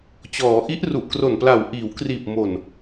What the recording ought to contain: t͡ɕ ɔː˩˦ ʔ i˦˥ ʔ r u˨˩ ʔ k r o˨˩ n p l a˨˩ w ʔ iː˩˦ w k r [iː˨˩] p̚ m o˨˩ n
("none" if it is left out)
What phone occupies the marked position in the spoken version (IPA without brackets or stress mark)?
iː˨˩